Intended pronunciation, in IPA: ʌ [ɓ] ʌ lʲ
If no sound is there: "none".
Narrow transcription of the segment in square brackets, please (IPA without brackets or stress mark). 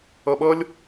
ɓ